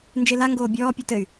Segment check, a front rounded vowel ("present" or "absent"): present